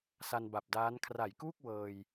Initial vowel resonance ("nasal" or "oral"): oral